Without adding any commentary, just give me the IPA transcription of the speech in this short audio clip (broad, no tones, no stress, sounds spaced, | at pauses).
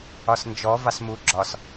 ɒ s n d͡ʒ ɔ v ɑ s m u ɡ͡ǁ ɒ s